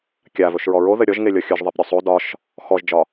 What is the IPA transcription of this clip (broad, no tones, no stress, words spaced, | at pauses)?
kʲavɵʃɹɔ ɹoðɘ ɾʲɔʒŋe lʲɔxʲɵʒðˤip ɾʲosˤo dɒʃ | xɔʒd͡ʒɒ